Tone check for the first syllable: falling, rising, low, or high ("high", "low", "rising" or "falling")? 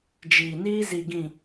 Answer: low